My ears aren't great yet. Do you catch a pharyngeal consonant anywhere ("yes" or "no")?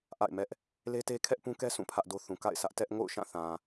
no